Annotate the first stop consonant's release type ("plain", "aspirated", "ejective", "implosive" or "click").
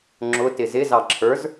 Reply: click